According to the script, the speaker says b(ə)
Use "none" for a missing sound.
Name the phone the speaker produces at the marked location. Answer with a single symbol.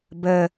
ə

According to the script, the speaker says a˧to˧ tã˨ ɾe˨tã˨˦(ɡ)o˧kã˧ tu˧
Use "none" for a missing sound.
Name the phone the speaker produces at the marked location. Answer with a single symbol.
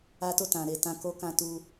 k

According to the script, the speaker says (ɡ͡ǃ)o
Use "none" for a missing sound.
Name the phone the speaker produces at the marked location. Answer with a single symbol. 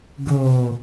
ɡ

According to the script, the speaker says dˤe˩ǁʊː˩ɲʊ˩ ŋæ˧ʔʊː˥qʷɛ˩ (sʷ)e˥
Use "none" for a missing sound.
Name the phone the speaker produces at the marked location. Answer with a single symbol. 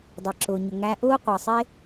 sˤ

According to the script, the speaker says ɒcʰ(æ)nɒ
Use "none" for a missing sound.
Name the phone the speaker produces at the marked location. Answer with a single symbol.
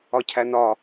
æ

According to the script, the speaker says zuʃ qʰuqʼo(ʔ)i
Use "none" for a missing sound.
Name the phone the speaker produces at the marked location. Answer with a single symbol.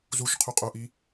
ʔ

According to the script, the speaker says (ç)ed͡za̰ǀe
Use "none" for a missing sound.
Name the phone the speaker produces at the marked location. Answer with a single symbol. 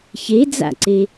ç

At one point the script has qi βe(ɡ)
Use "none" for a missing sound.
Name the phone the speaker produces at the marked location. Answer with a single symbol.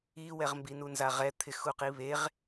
ʁ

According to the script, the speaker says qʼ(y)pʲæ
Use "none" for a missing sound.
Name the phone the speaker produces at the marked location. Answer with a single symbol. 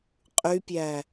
y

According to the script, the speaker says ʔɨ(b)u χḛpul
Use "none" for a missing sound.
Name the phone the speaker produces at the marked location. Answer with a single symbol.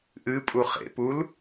pʼ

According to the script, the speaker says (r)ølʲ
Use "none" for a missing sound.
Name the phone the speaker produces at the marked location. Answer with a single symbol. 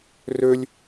r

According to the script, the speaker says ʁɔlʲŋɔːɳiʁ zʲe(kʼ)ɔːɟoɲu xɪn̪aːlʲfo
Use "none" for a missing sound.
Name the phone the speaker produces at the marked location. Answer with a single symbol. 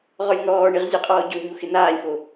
qʼ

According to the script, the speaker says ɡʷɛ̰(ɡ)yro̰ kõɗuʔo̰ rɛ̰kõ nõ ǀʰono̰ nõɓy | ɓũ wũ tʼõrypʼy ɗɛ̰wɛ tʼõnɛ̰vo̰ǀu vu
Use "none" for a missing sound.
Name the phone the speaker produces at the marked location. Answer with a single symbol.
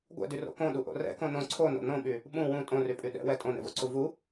d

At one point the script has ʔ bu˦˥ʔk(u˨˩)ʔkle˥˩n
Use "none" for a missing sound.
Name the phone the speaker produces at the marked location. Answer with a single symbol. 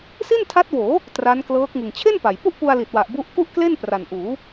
u˥˩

